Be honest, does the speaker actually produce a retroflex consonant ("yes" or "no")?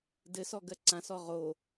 no